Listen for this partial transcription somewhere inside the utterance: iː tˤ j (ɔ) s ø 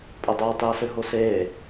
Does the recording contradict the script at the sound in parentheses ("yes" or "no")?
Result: yes